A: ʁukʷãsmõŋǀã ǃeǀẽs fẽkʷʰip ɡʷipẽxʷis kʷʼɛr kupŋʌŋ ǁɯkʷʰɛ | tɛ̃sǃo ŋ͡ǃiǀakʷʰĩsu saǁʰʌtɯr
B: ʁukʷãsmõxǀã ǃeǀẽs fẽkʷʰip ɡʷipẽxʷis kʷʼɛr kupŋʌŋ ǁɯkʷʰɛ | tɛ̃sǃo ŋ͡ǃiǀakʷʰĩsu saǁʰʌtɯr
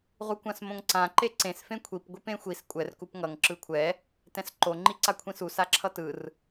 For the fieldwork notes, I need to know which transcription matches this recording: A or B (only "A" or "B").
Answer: A